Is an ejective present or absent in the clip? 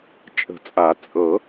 present